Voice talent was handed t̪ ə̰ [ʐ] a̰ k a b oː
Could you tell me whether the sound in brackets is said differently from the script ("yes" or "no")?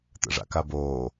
no